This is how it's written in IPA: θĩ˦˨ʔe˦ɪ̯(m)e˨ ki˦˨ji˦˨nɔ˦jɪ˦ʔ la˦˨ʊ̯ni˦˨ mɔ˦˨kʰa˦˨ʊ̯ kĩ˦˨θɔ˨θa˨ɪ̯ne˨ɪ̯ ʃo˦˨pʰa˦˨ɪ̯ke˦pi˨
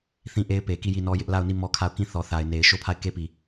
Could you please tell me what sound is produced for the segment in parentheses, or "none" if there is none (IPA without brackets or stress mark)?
p